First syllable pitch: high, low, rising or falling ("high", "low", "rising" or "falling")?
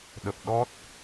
low